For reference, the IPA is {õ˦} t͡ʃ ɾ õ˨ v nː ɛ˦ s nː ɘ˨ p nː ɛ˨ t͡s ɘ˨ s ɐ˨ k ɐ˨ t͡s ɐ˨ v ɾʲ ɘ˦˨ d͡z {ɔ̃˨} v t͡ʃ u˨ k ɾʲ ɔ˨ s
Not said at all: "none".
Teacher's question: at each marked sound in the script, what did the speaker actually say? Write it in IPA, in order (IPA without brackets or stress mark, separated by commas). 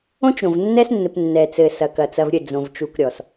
õ˦, õ˨